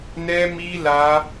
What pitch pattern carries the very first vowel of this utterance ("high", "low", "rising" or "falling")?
high